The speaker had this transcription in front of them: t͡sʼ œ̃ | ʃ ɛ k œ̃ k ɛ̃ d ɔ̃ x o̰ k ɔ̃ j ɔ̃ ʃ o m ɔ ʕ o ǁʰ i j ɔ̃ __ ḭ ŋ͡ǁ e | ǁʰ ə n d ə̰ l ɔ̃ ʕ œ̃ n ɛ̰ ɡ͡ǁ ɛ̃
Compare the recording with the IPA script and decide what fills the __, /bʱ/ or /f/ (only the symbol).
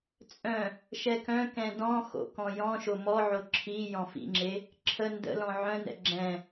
f